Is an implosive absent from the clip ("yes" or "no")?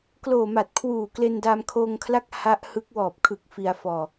yes